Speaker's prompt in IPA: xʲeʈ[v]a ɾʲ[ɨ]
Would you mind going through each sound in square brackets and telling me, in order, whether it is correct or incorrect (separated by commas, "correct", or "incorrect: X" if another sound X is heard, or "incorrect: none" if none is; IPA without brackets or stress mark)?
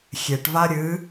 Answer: correct, correct